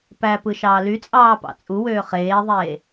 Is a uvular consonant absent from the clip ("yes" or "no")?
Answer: no